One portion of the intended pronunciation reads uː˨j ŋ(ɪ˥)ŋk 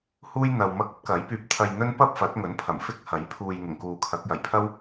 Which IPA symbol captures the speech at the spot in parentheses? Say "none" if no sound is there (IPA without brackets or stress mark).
ɪ˨˩